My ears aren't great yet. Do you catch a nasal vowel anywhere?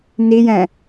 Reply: yes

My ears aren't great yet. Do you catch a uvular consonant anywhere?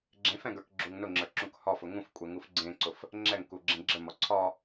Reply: no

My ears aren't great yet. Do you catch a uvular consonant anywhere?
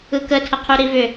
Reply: yes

